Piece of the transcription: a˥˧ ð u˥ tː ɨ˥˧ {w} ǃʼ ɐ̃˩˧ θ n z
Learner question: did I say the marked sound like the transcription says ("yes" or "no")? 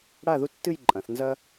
no